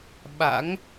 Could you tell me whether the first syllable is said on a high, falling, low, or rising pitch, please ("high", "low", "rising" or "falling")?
rising